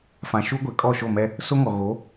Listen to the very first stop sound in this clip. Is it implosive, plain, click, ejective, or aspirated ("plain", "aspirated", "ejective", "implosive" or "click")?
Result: plain